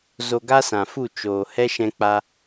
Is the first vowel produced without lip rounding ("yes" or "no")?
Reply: no